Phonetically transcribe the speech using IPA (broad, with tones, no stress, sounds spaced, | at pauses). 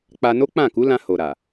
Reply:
k͡p a˧ n o˦ k͡p ã˦˨ k u˨˦ l ã˧ h o˨ ɾ a˨